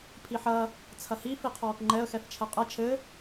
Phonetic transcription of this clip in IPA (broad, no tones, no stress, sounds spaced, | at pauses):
pʰ i ħ ɐ | t͡sʰ ɐ h i f i qʰ ɔː k ŋ͡ǃ ɛ ə̯ x ɛ f t͡ʃʰ ɛ qʼ ɐ t͡ʃʰ ɘ